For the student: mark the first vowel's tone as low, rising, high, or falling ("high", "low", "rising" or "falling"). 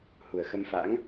low